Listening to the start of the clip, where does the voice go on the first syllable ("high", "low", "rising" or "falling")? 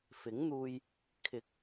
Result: rising